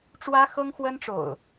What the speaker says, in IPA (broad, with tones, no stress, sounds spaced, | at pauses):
ʈ͡ʂ w ä˦ x ɤ˦ ŋ x w ə˦ n ʈ͡ʂ o̰˨˩ ʊ̯